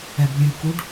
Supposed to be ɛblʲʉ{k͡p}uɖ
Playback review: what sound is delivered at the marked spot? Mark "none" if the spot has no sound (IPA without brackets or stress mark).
k